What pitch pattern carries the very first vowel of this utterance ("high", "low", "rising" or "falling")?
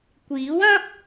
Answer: rising